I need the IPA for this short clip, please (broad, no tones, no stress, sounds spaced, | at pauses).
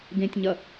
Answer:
ɡ ẽ tʲ ɲ ɐ